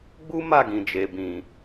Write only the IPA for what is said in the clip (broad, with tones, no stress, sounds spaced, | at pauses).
ɡ͡b u˦ m a˦˨ ɡ ĩ˨ d͡ʒ e˨ b ĩ˨